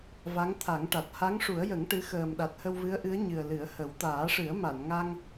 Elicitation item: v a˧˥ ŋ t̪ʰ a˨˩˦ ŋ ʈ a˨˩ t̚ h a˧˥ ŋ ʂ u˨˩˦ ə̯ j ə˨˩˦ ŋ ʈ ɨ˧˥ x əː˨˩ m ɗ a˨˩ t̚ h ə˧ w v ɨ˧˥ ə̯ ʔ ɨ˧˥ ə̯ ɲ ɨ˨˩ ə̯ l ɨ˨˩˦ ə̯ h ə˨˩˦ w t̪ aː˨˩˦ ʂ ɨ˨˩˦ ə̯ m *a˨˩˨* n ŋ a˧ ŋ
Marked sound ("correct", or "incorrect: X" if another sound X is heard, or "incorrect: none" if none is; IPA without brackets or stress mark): correct